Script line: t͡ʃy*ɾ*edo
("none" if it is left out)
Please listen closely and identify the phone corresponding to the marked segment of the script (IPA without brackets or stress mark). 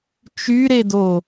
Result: ɾ